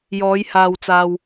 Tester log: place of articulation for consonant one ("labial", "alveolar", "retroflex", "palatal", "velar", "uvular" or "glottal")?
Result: palatal